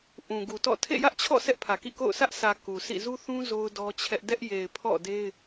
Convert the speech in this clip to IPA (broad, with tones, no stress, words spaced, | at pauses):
ʔũ˨ɡu˨tɔ̰˦˨ tʰḛ˦˨jä˦ʔt͡ɕʰɔ̰˦˨ sɛ˦ʔpʰä˨kḭ˦˨ko̰˦˨ʊ̯ sä˦ʔsʰä˨ ku˨sʰḭ˦˨ zu˦θũ˦ zo˦ʊ̯dɔ˦t͡ɕʰɛ˦ʔ dɛ˦ʔ je˨ɪ̯ pʰɔ̰˦˨de˦ɪ̯